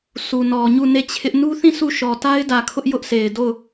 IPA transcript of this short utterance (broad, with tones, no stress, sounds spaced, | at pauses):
s u˨ n ɔ˨ ɲ u˦˨ n e˦˨ t͡ɕʰ ɪ˦ ʔ n u˦ θ ĩ˦˨ s u˦˨ ʃ ɔ˨ t a˦ ɪ̯ d ä˨ kʰ ʊ˦ ʔ j ʊ˦ ʔ s e˨ ɪ̯ d o˦˨ ʊ̯